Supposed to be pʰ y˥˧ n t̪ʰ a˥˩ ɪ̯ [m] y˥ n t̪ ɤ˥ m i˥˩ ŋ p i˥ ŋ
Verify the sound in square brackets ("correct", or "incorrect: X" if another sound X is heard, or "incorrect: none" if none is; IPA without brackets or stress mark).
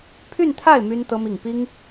correct